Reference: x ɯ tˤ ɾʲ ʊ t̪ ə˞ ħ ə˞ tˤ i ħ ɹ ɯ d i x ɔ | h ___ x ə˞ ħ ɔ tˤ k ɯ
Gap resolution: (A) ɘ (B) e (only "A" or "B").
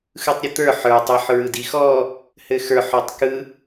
A